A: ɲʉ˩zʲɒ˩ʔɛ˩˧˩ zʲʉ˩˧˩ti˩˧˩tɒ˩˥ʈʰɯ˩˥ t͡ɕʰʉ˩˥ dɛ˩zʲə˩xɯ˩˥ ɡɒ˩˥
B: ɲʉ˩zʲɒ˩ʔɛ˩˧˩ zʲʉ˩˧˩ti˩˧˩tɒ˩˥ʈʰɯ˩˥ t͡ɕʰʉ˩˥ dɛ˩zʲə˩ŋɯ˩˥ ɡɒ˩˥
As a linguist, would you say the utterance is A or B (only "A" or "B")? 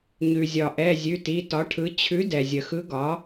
A